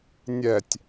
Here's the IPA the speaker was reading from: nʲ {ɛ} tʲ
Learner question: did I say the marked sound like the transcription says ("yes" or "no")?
yes